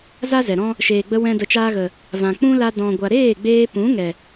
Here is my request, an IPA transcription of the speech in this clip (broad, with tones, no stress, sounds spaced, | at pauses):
z a˦ z ɛ˨ ɾ ɔ̃˦ | ʃ eː˨ ɡ͡b ə˧ w ɛ̃˧ d ə˨ t͡ʃ aː˧ ɣ ə˨ | v ã˨ k͡p ũ˦ l a˧ d ɔ̃˨ ɡʷ a˨ ɾ eː˦˨ ɡ͡b eː˧ p ũ˨˦ ŋ ɛ˨